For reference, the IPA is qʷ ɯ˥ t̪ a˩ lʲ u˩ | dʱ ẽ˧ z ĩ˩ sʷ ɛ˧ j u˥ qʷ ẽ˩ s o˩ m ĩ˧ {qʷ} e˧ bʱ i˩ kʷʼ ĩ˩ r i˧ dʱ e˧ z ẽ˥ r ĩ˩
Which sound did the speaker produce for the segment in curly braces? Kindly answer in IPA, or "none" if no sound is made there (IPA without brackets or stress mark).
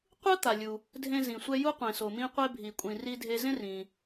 qʷ